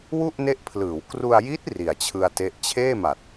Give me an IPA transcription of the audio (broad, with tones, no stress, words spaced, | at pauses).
wu˥˩ʔne˦˥ʔpʰlɯː˩˦w kru˧a̯ji˦˥t̚ ri˨˩a̯t͡ɕʰɯ˧a̯te˦˥ʔ t͡ɕʰeː˥˩ma˨˩t̚